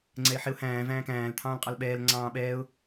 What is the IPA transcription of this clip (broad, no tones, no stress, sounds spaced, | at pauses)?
ŋ͡ǀ ɛ ɪ̯ ħ ɪ ʊ̯ h æ̃ː v æ̃ː k æ̃ː l t̪ʰ ɑ̃ː l qʼ ɑ l ɓ ɛː l ŋ͡ǀ ɑ̃ː ɓ ɛː ʊ̯